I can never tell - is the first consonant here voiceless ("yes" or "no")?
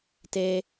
yes